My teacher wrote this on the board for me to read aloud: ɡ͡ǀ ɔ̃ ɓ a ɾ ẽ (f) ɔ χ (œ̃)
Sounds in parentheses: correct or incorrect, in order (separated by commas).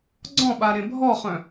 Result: incorrect, correct